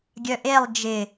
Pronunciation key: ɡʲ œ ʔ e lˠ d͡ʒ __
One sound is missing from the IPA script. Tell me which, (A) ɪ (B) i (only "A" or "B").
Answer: A